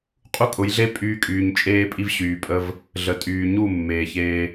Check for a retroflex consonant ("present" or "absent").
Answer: absent